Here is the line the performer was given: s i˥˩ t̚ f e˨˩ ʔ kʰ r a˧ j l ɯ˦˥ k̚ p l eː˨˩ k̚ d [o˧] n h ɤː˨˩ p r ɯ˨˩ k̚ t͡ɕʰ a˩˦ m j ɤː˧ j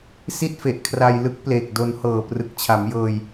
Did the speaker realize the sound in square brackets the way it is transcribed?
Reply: yes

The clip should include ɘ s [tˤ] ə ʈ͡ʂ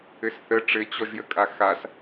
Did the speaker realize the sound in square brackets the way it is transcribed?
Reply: no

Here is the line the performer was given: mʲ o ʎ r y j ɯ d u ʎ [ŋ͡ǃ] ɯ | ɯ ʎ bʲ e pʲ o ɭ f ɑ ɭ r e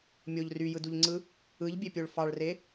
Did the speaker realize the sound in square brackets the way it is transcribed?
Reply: no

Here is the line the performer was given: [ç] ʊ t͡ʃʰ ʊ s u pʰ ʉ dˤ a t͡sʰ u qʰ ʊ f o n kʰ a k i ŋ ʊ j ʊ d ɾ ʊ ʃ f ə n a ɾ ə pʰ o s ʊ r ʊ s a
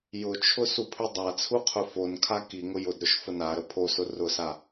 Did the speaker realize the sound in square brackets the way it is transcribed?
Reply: no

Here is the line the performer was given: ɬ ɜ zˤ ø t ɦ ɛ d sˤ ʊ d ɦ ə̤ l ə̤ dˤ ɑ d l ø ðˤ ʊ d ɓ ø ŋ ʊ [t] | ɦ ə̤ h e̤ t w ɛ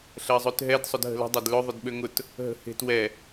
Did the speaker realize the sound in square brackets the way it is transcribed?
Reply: yes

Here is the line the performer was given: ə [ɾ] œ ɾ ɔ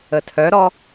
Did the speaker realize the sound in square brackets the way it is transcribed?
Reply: no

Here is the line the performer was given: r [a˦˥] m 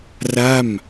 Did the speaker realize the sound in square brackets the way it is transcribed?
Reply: no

